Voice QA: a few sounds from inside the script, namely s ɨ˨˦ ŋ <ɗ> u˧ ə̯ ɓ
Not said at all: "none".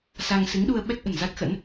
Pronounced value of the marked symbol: ɗ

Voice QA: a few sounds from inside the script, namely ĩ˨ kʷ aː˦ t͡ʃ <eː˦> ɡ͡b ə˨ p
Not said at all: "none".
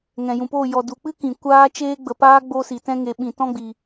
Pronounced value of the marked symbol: eː˦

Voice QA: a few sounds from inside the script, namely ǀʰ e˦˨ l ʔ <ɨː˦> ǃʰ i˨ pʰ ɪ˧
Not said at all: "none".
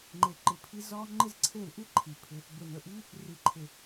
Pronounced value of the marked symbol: ɨ˦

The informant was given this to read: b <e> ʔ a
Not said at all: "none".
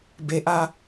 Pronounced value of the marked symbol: e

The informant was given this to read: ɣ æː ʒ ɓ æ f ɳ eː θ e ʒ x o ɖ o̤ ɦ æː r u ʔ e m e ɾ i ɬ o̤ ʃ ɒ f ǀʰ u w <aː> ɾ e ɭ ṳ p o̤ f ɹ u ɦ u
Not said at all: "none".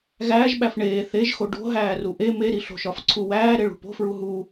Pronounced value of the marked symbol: æː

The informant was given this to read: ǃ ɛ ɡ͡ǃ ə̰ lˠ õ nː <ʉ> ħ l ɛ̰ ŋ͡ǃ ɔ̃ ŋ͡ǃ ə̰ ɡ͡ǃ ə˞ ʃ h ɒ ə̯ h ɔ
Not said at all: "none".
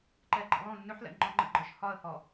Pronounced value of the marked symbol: ʉ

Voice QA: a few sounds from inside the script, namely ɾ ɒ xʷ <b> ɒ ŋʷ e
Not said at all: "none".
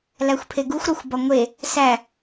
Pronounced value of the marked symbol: b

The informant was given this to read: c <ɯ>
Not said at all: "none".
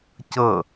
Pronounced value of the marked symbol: ɤ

